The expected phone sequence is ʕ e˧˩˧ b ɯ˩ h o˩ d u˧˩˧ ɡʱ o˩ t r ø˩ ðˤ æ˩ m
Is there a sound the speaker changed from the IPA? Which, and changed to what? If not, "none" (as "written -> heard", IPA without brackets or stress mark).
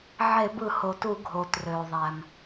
d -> t